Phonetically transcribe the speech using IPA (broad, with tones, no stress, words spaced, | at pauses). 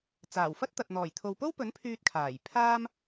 t͡saː˨˩wfɐ˥t̚t̪ɐ˨t̚ n̪ɔː˨˩jt̪ʰo˨wpo˥wpɵ˨˥n pʰyː˧t̚kʰaː˨˩j pʰaː˥m